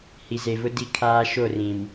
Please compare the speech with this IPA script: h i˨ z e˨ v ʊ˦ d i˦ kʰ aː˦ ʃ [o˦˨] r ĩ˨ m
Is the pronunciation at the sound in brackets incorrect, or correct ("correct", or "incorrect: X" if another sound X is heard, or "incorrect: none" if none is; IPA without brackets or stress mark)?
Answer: correct